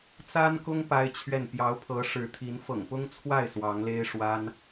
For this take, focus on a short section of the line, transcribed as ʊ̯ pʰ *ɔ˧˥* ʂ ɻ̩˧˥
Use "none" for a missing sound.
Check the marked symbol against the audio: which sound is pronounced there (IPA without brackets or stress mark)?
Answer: ɤ˧˥